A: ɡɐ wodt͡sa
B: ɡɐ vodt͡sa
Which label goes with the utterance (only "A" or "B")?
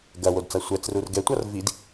A